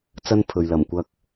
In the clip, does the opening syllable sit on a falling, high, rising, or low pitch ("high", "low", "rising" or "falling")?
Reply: high